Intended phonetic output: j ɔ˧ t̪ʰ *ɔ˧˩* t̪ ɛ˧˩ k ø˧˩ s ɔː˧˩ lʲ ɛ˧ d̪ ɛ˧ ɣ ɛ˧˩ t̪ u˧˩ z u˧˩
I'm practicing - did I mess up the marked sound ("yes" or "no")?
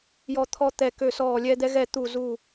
yes